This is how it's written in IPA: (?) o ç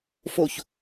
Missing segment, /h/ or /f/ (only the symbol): f